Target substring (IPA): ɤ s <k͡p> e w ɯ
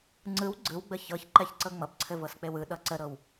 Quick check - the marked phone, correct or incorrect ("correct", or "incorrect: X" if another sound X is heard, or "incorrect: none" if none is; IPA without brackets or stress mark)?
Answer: correct